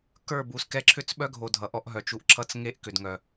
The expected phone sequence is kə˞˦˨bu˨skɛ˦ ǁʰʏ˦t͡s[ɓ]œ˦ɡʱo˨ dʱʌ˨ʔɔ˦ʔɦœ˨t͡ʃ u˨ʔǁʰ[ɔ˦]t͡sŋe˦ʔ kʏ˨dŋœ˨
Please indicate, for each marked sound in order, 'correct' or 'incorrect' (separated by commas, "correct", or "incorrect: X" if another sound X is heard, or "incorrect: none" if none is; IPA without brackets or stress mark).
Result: correct, incorrect: ʌ˦